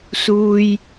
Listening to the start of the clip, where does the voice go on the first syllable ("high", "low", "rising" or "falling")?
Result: low